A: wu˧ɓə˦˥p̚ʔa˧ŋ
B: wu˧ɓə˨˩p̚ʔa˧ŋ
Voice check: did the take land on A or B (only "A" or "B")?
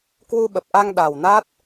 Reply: B